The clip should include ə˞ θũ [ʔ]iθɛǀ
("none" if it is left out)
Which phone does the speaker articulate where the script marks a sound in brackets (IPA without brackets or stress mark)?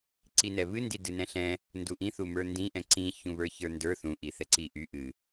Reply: ʔ